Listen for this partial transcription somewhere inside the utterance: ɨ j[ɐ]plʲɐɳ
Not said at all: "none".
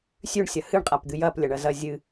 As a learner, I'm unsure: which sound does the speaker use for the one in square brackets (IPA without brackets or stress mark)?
ɐ